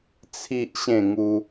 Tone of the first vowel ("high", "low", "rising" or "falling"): high